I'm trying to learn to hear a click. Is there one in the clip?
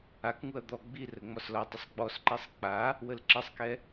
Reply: yes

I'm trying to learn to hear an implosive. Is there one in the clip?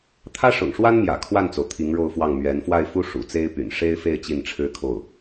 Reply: no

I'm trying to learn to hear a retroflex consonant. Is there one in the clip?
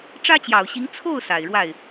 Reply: yes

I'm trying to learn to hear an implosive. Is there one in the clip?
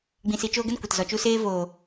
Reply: no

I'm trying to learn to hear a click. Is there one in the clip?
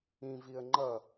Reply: yes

